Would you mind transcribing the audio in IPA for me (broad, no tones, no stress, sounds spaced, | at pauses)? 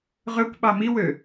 ʁ ø kʷ ɓ ɑ m i w ø